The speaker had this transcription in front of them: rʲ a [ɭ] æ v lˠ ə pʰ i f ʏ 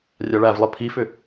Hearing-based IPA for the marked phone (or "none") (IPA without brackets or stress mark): ɭ